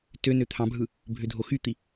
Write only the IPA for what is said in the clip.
tønø t̪ʰɑ̃bʱɯ | bʱødʱoxyt̪i

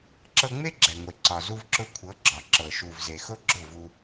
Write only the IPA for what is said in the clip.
ǁɤ˧ ŋ͡me˦ɡ͡ǁɛ˨ŋʷe˨ ǀɒ˨ zu˧vǁʊ˧ kʷʰɤ˨˦ɡ͡ǁɒ˨ǁɤ˨ ʃu˨vze˨ xʊ˦ɡ͡ǁʊ˦˨vu˧

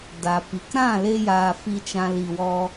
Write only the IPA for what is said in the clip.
da˨pi˨k ɾã˦˨le˧jaː˨ fi˧t͡ʃã˧li˨wɔ˧

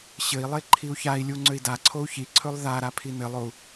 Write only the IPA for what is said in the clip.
ɕɘi̯lˠe ǃʰiu̯çai̯lʲu ŋ͡ǀøi̯daǀʰou̯ çiǀʰɵlˠ ða ɾapʰinɘlˠou̯

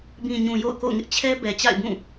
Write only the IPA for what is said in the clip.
bĩ˨ɲũ˨ jo̰˦˨ʊ̯ko̰˦˨ʊ̯ŋɪ˦ʔ t͡ɕʰɛ˦bɛ˨ t͡ɕa̰˦˨ɪ̯bũ˦˨

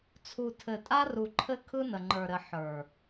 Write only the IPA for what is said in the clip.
t͡sʰu˨tʰɘ˨tʼa˦ ru˨ǃʰɘ˦ kʰɯ˦nə˨ŋ͡ǃə˞˨ɾɘ˨ ħə˞˨

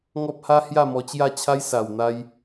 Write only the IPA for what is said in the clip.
ŋɔ˦p̚ha˦hja˥˧ mɔ˧t͡ɕja˥˧t͡ɕʰa˦j sa˨˩wn̪a˧j

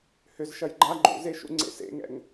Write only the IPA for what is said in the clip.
hʏz ʃɐjɡ͡ǃa ɡ͡ǃṵzeʃṵ ŋ͡ǀḛsḛŋɛ̰ŋ

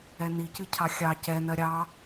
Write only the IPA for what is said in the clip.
ɛnicɨ cʰɑxʲɑ cɛnɜ ɾʲɑ

